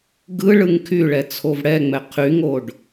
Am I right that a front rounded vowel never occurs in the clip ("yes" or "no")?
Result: no